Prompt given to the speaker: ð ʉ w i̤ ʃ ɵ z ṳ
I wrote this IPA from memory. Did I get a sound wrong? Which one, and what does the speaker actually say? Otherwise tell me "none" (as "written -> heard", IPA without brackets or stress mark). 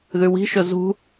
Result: none